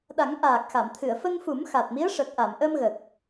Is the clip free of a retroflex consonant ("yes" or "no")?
no